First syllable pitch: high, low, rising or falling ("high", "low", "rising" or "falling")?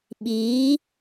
rising